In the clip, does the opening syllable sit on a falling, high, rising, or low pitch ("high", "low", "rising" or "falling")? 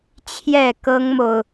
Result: falling